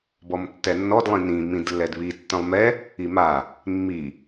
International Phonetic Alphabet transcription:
bɔmtːɛnːɔd lˠĩnĩ mĩdlːɛdβi tːə̃lˠmɛ | ima | mːi

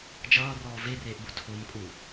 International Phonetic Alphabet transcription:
d͡ʒʌːrɔː vereːʔbu tʰomkʼu

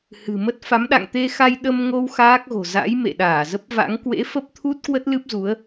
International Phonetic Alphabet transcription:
hɨ̤˨˩mə˦˥t̚ fa˨˦mɗa̰˧˨ŋt̪e˧xa˧j ɗə˧mŋo˧w xaː˦˥k̚ɣo̤˨˩ za̰˧˥j mḛ˧˨ɗaː˧˩zə˦˥p̚va̰˧˥ŋ kwḛ˧˥fə˦˥p̚t̪ʰu˦˥t̚ kwə˦˥t̚lɨ˦˥p̚zu˨˦ə̯

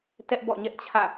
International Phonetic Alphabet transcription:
tɛ˦ʔ bɔ̰˦˨ɲɛ˦ʔ t͡ɕʰä̰˦˨

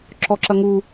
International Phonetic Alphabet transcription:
ǁɔǁɐŋu

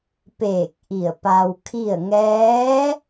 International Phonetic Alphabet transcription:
peː˧˩k̚ ʔi˧˩ə̯pa˧w kʰi˥˨ə̯ ŋɛː˧˥

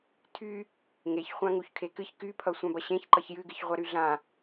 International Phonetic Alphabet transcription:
tʰy | ŋeçχʷã ŋuçkʰekɨç kypʰʌ sʷãbʌɕẽçǃʌç jɨɡɨç ʁʷaɾyɮã

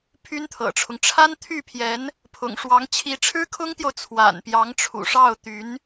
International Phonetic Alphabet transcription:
pʰy˥nt̪ʰɤ̰˨˩ʈ͡ʂʰʊ˦ŋ ʈ͡ʂʰa˥nt̪ʰy˥˩pʰjɛ˧˥n | pʰʊ̰˨˩ŋʂwɑ˧˥ŋ t͡ɕʰi˧˥ʈ͡ʂʰɻ̩˥kʰʊ˥ŋt̪jo˨ʊ̯ t͡sʰwa̰˨˩npjɑ˧˥ŋʈ͡ʂʰṵ˨˩ ʂɑ˥˩ʊ̯t̪y˧˥n

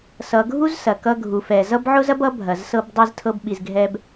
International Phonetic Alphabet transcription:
sʌ˧ ɡʱu˦zsɐ˨ kʌ˧ɡʱu˨fɛ˨ zʌ˦bʕʊ˦zɐ˦bʌ˨˦ bʱɐ˨zsɤ˧b dˤi˦ztʰɤ˦bɓi˧zɡʱɛ˦b

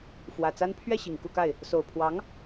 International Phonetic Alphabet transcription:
fwä˨˩t͡sa˥n pʰɥɛ˥˩ ɕi˨˩ŋku˥˧ka˥˩ɪ̯ | so˨˩ʊ̯pʰwɑ˧˥ŋ

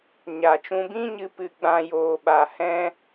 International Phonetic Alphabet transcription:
ɲa˨t͡ʃũ˧bĩ˦ɲɨ˧ pɨ˧ɡ͡bã˧joː˨ɓa˨ hɛ̃˦

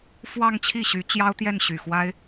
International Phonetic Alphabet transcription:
fwɑ˥˧ŋ t͡ɕʰi˥˩ɕy˧˥ t͡ɕjɑ˥ʊ̯t̪jɛ˥˩nɕy˨˩ xwa˥ɪ̯

